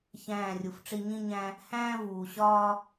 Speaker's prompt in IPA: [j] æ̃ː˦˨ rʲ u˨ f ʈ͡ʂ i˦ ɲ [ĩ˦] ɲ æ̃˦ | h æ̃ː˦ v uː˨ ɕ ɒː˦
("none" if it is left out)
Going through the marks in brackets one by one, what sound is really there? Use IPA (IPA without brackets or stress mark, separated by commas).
ç, ĩ˦